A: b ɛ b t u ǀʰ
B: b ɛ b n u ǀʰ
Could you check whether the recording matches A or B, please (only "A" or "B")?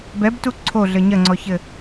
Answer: A